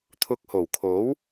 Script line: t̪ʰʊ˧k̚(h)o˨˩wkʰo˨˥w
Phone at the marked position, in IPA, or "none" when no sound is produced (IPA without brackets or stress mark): h